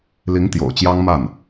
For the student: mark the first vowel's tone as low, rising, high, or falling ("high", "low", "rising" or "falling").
rising